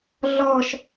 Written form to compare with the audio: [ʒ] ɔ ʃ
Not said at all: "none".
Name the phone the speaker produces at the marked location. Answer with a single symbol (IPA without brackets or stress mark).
ɮ